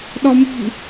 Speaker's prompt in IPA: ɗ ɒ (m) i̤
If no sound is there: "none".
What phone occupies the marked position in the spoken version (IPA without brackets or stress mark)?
m